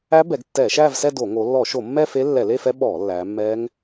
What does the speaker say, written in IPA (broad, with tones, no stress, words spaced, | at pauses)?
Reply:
æ˦˥ bɛ˩˧ɡtːɛː˧˩˧ʃæː˥˧vsɛ˥˧ do˧˩˧ ŋo˩˧lːɔ˧˩˧ʃo˧˩˧mːɛ˥˧ fe˦˥lːɛ˧˩˧le˥˧fɛ˦˥ ɓɔː˧˩˧ lːæː˩˧mːɛː˦˥ŋ